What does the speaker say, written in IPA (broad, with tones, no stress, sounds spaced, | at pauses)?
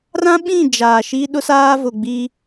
r ã˦ ɓ ĩ˦˨ d͡ʒ aː˨ ʃ i˦ ɗ ʊ˦ s aː˦ v ʊ˨ ɡ͡b i˦